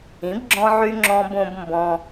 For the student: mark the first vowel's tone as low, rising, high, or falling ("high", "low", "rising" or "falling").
rising